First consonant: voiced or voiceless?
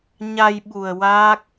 voiced